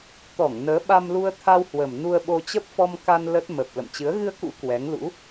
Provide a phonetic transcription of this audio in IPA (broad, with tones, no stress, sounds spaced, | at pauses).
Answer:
t̪ ɔ˧˩ ŋ n əː˨˦ ɓ a˧ m l u˧ ə̯ t̪ʰ a˧ w h w ə˨˩ m n u˧ ə̯ ɓ o˧ t͡ɕ ə˦˥ p̚ f ɔ˧ m k a˧ n l ə˦˥ t̚ m ə˨˩ p̚ l ə̰˧˨ m t͡ɕ ɨ˨˦ ə̯ ɣ ɨ˧ ə̯ k ṵ˧˥ k w ɛ˨˦ ŋ l ṵ˧˥